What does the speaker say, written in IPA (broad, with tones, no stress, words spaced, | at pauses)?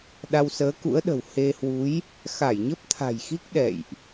ɗa˧wsəː˨˦kṵ˧˥ə̯ɗə̤˨˩w he˧hwu˨˦j | xa˧˩jɲə˦˥p̚t̪ʰa̤˨˩jxi˦˥k̚ ɗɛ̰˧˨jʔ